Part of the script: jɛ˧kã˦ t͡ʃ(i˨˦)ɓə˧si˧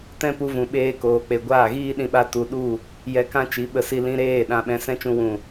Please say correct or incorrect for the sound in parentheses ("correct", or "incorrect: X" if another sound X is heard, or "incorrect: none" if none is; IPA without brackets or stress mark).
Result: correct